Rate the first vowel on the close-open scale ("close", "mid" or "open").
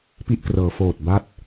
close